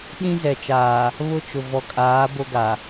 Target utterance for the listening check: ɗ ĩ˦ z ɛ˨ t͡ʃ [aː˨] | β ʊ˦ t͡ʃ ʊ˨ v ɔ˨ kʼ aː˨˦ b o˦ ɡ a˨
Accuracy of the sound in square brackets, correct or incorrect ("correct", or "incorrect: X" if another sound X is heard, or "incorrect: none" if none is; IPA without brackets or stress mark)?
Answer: correct